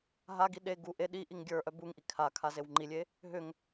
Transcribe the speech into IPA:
ɦ a ɡ i ɗ e ɡ u ʔ e ɗ i ʔ i ŋ ɡʲ ə˞ ʔ œ b u ŋ ʔ i kʰ a kʰ a z e w ŋ͡ǃ i lʲ e | ɦ ʏ ŋ

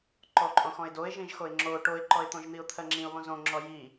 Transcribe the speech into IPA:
ǃ ɔ ǃʼ õ x ɔ̃ ɪ̯ d o ɪ̯ ʒ ĩ ʒ x o ɪ̯ ŋ͡ǁ o ʈ o ɪ̯ ǃ ɔ ɪ̯ t̪ õ ʒ n̪ i ʊ̯ t̪ʰ ɜ ŋ͡ǁ ĩ ʊ̯ β õ z õ ŋ͡ǁ ɔ j i

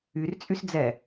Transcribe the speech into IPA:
y r t͡sʼ y s d͡z ɛ

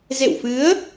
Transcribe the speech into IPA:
z ḛ˧˨ w f ɨ˨˦ ə̯

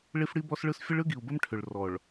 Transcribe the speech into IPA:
ɭ i˦ f ɽ i˦ b ɔ˦ s ɭ ɯ˦ s fʲ ə˦ ɭ ɯ˦ ɡ i˨ u̯ b ə˦ m ʈʰ ʏ˨ ɭ r ɔ˨ ɭ

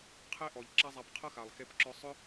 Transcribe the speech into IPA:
qʰ e˦ ʔ ɔ˨ ʎ ǁ a˦ zˤ a˧ p qʰ ɐ˦ x a˨ lˠ x e˧ p ǁ ɔ˧ sˤ ʏ˦

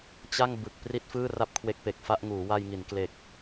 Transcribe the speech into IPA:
t͡ɕ a˥˩ ŋ b ɯ˨˩ k̚ p r i˥˩ t̚ f ɯː˥˩ r a˥˩ p̚ kʰ w e˦˥ k̚ p e˨˩ k̚ f a˥˩ ʔ ŋ uː˩˦ w a˧ j ŋ i˩˦ n k l e˨˩ k̚

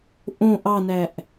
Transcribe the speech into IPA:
ʔ õ ʔ ɑ n æ ʔ

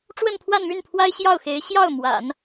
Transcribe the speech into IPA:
ʈ͡ʂ w ə˥˧ n pʰ w a˥˧ n m y˥˩ n pʰ w a˥ ɪ̯ ɕ j ɑ˥˩ ʊ̯ x e˧˥ ɪ̯ ɕ j ɑ˥˩ ʊ̯ m w a̰˨˩˦ n

